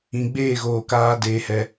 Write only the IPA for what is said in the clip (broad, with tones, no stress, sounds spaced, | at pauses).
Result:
ĩ˨ ɡ͡b eː˦˨ ɣ oː˨ k aː˦ d eː˧ h ɛ˧